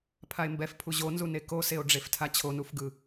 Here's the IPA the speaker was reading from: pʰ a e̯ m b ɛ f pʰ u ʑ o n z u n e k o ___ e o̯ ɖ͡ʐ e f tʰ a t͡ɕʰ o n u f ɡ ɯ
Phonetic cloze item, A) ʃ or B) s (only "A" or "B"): B